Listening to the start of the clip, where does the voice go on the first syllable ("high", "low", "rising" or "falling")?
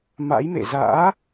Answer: rising